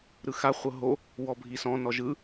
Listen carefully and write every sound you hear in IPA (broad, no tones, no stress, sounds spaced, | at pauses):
ɾ ɯ x a χʷ ɤ ɦ o | w ɔ bʱ i s ɔ̃ n ɔ ʒ ɯ